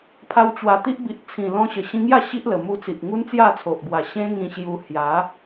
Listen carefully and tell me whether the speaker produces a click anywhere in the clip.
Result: no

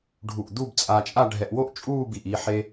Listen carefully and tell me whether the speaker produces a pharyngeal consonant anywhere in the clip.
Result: yes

